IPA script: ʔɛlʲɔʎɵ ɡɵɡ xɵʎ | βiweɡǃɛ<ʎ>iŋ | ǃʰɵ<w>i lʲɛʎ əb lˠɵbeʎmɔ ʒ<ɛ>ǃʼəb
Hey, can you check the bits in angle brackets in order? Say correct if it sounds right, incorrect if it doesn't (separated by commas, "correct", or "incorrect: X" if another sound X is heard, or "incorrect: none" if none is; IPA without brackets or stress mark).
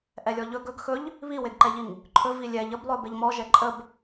correct, incorrect: v, correct